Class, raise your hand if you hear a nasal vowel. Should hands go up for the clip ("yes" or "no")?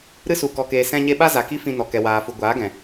yes